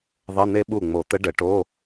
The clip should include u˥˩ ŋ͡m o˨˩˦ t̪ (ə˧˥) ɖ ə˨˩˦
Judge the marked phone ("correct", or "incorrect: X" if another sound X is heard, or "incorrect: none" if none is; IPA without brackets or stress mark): correct